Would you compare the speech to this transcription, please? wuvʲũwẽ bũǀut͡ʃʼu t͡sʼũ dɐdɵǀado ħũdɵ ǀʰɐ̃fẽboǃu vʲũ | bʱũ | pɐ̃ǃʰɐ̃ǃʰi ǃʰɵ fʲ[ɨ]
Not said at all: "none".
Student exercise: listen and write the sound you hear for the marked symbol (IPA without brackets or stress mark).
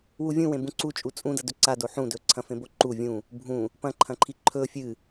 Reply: ɨ